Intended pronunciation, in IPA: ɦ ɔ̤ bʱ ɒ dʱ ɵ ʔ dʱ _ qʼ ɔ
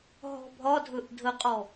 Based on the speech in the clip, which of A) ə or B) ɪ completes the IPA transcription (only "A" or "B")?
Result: A